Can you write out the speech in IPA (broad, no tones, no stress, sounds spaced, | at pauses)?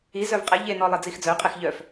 i z œ v qʼ ɛ ʎ e n ɔ lˠ e d͡z i x d͡z œ qʼ ɛ x ʎ œ f